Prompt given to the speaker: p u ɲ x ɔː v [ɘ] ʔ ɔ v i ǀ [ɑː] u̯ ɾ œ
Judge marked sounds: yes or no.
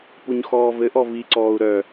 yes, no

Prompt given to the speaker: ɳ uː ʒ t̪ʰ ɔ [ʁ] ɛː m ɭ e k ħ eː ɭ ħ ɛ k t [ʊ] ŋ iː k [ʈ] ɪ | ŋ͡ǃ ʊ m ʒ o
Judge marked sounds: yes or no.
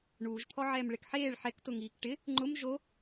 no, yes, yes

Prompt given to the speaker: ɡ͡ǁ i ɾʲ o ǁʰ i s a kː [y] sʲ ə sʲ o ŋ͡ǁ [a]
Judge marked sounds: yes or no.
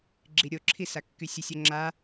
yes, yes

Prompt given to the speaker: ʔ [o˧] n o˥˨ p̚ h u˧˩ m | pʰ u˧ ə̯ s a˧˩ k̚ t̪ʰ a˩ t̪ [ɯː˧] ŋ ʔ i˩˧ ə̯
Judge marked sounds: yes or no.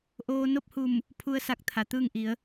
no, no

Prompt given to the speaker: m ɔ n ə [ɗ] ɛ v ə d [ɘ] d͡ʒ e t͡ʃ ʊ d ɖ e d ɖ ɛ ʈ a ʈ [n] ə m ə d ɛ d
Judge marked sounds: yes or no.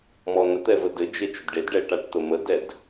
no, yes, no

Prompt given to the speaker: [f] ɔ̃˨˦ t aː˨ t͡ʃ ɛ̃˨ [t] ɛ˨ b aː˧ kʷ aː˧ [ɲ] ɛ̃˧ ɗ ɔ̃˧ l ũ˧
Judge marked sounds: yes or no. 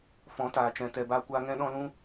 yes, yes, no

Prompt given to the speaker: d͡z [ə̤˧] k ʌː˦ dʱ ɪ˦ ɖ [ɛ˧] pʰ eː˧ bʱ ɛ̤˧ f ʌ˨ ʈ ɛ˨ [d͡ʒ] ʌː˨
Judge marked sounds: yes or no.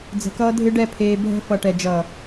yes, no, yes

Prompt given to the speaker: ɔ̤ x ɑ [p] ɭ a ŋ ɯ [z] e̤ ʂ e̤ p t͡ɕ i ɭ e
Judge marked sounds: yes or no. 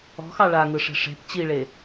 no, no

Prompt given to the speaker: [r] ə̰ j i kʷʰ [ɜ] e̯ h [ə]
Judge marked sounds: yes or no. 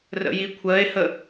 yes, yes, yes

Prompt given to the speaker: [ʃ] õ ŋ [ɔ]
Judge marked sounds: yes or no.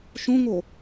yes, no

